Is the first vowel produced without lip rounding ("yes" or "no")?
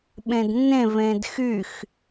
yes